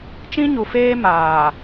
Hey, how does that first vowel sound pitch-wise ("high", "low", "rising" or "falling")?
high